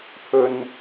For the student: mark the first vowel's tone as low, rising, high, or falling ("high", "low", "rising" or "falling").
low